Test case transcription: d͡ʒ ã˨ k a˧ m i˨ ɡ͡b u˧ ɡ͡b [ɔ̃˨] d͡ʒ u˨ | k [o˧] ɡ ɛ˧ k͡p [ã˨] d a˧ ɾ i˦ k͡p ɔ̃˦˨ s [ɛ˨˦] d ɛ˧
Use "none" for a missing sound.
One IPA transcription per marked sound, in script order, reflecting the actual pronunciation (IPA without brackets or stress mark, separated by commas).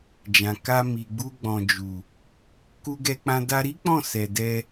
ɔ̃˨, u˧, ã˧, ɛ˨